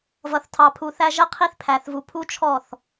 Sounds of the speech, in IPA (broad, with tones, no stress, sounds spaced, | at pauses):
v ʌ˨ θ tʰ ɑ˨ pʰ u˨ θ æ˧ ʒ ə˦ qʰ i˧ θ pʰ æ˨ θ v u˨ pʰ u˦ t͡ʃʰ ɔ˦˨ θ